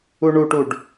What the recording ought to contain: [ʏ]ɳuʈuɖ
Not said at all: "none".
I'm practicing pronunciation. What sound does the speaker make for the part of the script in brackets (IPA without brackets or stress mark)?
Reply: u